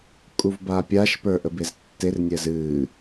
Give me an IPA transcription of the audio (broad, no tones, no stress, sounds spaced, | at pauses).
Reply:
kʼ u v b a pʲ a ʃ p ə˞ ʔ ə b e z tː e r nʲ ɛ z ɨ